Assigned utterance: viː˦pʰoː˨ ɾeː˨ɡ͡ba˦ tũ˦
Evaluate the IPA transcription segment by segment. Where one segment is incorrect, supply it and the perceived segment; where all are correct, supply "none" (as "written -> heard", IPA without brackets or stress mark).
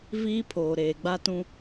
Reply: none